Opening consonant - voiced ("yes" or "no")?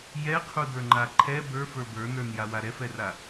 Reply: yes